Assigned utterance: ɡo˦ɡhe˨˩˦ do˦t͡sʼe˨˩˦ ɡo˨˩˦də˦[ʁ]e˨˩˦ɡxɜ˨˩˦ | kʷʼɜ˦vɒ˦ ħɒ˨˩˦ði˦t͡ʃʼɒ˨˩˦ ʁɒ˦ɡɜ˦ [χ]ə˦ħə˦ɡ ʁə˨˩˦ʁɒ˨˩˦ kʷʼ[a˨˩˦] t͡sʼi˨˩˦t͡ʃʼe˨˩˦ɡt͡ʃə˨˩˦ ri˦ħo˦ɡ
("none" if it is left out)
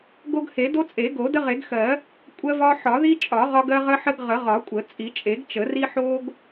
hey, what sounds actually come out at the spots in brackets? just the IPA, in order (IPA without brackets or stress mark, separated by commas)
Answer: ʁ, ʁ, ə˨˩˦